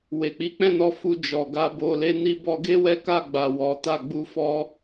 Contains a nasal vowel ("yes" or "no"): yes